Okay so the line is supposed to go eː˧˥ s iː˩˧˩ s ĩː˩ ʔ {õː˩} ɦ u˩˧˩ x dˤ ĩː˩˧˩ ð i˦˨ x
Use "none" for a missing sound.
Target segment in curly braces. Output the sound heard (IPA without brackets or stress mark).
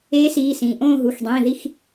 õː˦˨